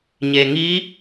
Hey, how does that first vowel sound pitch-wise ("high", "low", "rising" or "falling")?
low